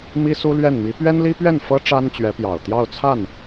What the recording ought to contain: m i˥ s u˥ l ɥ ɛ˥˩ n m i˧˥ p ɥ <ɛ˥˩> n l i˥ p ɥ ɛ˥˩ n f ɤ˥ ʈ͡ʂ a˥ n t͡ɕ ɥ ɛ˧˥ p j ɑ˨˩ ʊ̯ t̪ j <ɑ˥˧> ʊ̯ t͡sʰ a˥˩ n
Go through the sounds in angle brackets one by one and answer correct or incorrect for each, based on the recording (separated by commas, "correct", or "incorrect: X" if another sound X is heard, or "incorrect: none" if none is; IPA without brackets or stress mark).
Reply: incorrect: ɛ˥, correct